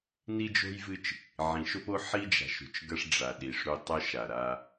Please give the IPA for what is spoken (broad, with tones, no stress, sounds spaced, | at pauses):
n i˦ d͡ʒ o̤˦ j v ɨ˦ t͡ʃ | ʕ ĩ˨ ʃ o˦ p o˦ ħ i˦ d͡ʒ a̤˨ ʃ ṳ˨ t͡ʃ ɡ ɐ˦ ʂ ɖ͡ʐ a˨ ɗ i˨ ʂ ɾ u˦ tˤ œ˦ ʃ a˨ ɾ a˦